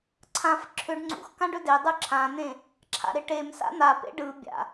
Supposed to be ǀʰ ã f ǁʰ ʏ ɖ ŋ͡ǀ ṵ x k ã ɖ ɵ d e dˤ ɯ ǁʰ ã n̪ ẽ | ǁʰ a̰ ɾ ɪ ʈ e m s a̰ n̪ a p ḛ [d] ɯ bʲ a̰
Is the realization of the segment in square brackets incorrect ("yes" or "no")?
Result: yes